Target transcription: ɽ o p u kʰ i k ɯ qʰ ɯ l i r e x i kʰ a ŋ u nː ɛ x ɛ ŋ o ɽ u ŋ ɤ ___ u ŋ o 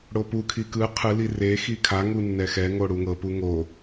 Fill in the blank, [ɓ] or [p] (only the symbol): p